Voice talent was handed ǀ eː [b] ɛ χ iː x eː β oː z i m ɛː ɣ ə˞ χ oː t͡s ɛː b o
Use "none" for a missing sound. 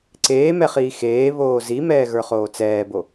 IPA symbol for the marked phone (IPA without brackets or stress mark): m